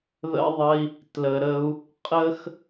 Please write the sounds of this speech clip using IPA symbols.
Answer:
ð ə̰˦ ðˤ ə˦ i̯ | t l ə˧ ɾ ə˦ u̯ | qʼ ə˦ x

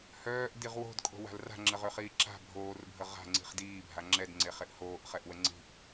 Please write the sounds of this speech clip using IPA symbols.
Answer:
h œː ʔ d i ʁ w o̤ d kʼ o̤ w a̤ l r a̤ ŋ͡ǁ ə ʁ ø χ iː ǁ a̤ bʱ oː r bʱ ə ʁ a̤ ŋ͡ǀ i̤ χ d iː bʱ a ŋ͡ǁ ɛ d ŋ͡ǀ e χ e ʔ h oː ʔ χ ɛ ʔ w ə ŋ͡ǀ i̤ ʔ

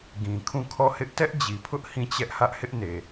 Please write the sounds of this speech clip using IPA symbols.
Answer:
ɡ ĩ˨ kʰ ũ˦˨ kʰ ɔ˦˨ h ɪ˦ ʔ t ɛ˦ ʔ d͡ʑ i˨ pʰ ʊ˦ ʔ h ĩ˦˨ t͡ɕ ɛ˦ ʔ h ä˦ ʔ h ɪ˦ ʔ n e˨

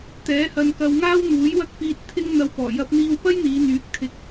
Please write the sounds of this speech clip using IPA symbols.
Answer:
t̪ ɛː˨˥ h ɐ˧ n k ɐ˧ w ŋ aː˥ w n̪ uː˨˥ j w ɐ˥ k̚ p iː˧ t̚ t̪ʰ ɪ˥ ŋ n̪ ɐ˧ w p ɔː˨˩ j ɐ˧ p̚ n̪ iː˧ w p ɐ˥ j n̪ iː˨˧ n̪ yː˨˥ k̚ t̪ʰ ɪ˧ k̚

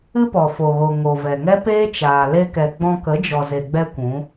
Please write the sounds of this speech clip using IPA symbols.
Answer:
ɨ˦ p ɔ˨ f o˨ ɣ o˨ ŋ o˨ v ɛ˨ ŋ ɛ˦ p eː˦ t͡ʃ aː˨ l e˧ k ɛ˨ ɡ͡b ɔ̃˧ k ə˨˦ d͡ʒ ɔ˨ z e˨ ɡ͡b ɛ˦ kʷ ũ˨˦

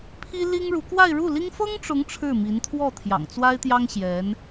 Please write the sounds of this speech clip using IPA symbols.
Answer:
pʰ i˥ l i˥ ŋ ɻ u˧˥ k w a˥˧ ɪ̯ ɻ u˥˩ l i˥ ŋ f ɤ˥ ŋ ʈ͡ʂ ʊ˧˥ ŋ ʈ͡ʂʰ ɻ̩˥˩ m i˧˥ n t̪ʰ w ɔ˥˩ t̪ʰ j ɑ̰˨˩ ŋ t͡s w a˥ ɪ̯ t̪ j ɑ˥ ŋ ɕ j ɛ˧˥ n

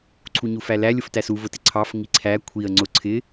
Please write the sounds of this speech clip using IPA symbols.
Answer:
ǀʰ u ɲ u f æ l æ lʲ ʊ f t æ s u v ʊ t ɪ ǀʰ ɑ f ŋ i ǀʰ æ kʷʰ i ə̯ ŋ͡ǀ ʊ ǀʰ ɪ

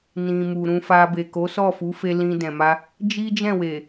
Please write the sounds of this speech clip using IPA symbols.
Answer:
n ĩ˨ m u˨ ɾ ũ˧ f a˧ b e˨ k o˨˦ s ɔ˦˨ f u˨˦ f e˧ l ĩ˧ d ɛ̃˨ m a˧ | d͡ʒ i˦ d͡ʒ ɛ̃˦˨ w e˨

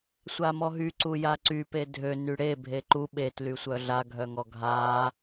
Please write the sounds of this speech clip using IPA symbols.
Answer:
sʷ a m ɔ ɦ y ǀ u j a ǀ y p e dʱ ø n y ɽ e bʱ e ǃ u ɓ e t l y sʷ œ ɮ a ɡʱ œ ŋ ɔ ɡʱ a

